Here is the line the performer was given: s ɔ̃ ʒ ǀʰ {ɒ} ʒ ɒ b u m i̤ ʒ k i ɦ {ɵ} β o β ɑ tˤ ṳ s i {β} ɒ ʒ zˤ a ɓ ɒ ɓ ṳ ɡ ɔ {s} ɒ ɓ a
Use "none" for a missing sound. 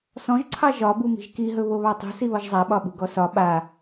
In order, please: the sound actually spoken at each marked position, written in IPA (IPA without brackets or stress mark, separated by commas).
ɑ, ɵ, β, s